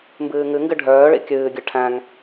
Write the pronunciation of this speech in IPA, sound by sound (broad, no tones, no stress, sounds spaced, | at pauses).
m b ɨː ŋ ɨ ŋ ɡ ɨ ɖʱ œː ɭ ḭ kʲ ɨː ɡʲ ɨ ʈʰ æ̃ ŋ